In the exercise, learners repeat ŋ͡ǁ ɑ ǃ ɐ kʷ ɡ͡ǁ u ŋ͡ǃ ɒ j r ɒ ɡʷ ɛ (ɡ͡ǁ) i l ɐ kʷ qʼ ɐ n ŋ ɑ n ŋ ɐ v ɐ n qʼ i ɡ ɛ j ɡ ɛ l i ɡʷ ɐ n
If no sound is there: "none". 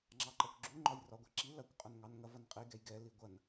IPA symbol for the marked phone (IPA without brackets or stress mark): ǁ